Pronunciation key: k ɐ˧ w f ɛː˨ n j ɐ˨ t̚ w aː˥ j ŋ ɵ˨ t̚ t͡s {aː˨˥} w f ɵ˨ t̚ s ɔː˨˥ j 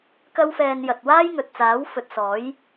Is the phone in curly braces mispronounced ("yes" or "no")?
no